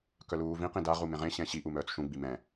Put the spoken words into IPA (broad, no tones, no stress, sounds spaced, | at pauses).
k œ l uː v ĩ q ĩ d a ʁ u m ẽ ʁ ẽ ɕ ɛ̃ ɕ i ʔ u m œː t͡s ʃ ũ ɡ͡b i m ɛ̃